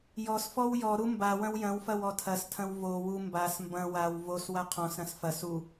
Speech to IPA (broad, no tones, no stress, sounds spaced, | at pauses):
j ɔ s f ɔ w j ɔ ɾ u m b a w ɐ̃ w j ɐ̃ w f ɐ w ɔ tʰ ɐ s tʰ ɐ̃ w v o w u m b a s m b ɐ̃ w a w v o s w a qʰ ɔ̃ s ɾ ɐ̃ s f ɐ s u